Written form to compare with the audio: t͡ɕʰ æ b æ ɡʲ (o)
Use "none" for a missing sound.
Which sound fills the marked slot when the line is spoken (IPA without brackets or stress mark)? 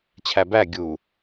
u